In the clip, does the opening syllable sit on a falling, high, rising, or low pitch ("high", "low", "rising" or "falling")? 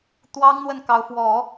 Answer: high